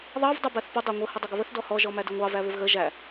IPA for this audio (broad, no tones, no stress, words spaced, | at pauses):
ðˤɑv dˤʌbæθpʌ dˤæŋʷə hʌdˤʌɡəβəθ dɔhɔ ʒɔmædɪŋʷɑ væβɪvɣə ʒæ